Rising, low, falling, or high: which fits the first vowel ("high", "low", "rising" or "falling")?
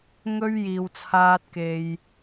high